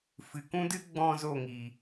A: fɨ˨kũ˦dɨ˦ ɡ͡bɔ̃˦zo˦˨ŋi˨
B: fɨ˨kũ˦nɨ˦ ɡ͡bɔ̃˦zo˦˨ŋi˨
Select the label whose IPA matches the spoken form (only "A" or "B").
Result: A